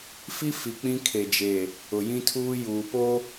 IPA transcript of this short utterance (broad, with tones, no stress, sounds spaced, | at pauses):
f i˦ f i˨ k͡p ĩ˦ kʰ e˨ d͡ʒ e˨ | ʊ˨ j ĩ˦ tʰ uː˦ j uː˨ p o˦